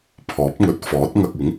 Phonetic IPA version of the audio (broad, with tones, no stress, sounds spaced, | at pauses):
pʰ ɔː˨˥ p̚ ŋ ɵ˨˥ t̚ f ɔː˨˥ t̚ ŋ ɐ˧ k̚ ɪ˨˥ ŋ